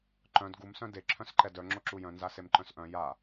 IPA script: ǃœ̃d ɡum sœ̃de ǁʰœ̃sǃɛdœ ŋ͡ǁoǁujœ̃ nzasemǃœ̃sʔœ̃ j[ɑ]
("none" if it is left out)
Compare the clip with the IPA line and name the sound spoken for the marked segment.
a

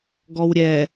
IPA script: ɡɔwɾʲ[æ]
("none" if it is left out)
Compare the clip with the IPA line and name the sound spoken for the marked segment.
ɛ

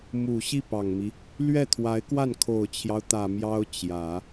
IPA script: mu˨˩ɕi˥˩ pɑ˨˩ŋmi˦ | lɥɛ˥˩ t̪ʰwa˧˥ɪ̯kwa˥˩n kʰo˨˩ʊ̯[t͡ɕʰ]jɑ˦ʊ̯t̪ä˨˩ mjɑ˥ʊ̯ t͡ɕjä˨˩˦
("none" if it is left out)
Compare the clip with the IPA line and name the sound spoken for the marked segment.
t͡ɕʰ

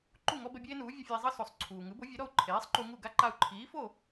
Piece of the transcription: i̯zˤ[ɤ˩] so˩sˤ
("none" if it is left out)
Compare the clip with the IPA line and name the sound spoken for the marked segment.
ɤ˥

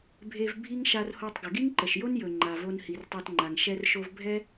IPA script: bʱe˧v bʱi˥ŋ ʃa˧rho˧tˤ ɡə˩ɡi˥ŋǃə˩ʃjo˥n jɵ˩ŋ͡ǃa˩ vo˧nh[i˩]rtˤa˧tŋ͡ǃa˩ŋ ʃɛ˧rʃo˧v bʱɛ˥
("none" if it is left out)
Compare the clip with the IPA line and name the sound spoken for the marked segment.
i˩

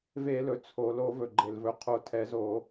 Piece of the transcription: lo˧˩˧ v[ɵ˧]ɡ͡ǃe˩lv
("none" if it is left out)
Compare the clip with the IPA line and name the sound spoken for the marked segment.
ɵ˩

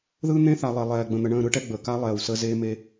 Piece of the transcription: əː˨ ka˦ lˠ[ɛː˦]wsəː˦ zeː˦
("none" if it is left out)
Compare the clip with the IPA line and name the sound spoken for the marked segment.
ɛː˨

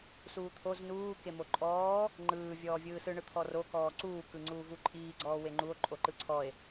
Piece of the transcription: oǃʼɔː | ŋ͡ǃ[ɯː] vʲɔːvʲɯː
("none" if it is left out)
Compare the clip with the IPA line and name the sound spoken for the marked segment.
ɯː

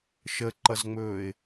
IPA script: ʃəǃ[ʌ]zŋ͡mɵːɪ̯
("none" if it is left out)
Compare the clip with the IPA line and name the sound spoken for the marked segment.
ʌ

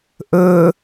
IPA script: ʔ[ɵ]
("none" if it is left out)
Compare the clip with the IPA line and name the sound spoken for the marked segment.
ɵ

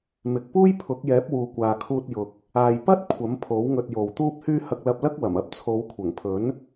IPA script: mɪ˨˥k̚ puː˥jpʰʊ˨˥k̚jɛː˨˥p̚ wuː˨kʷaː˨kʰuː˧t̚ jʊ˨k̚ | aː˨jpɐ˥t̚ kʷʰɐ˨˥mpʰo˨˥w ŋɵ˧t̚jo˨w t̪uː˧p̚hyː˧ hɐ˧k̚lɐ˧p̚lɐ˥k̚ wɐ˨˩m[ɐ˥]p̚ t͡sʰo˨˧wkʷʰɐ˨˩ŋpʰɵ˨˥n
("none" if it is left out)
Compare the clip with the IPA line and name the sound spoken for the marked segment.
ɐ˥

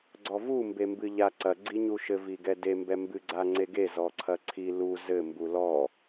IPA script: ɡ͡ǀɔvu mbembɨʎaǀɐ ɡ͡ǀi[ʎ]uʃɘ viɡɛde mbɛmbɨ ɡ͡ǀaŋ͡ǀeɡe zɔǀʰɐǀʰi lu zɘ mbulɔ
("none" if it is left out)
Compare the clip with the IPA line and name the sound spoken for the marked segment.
ɲ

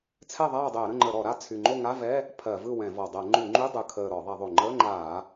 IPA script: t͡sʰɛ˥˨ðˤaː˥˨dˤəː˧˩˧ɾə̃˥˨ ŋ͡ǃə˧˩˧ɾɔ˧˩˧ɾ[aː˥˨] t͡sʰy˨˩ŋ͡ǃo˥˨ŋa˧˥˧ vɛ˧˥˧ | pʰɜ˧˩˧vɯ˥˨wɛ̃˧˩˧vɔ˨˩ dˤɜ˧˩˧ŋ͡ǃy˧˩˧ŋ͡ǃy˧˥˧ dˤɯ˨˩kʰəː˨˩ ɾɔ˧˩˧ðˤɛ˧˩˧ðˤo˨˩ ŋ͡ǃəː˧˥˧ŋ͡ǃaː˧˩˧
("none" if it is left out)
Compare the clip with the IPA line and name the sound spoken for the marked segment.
a˥˨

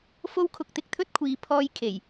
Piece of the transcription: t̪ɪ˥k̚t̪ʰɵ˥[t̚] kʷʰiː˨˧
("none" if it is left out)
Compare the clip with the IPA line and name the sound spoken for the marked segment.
t̚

